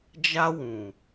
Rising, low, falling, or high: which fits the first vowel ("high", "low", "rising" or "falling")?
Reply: high